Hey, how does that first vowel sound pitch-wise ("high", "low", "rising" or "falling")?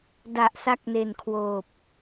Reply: low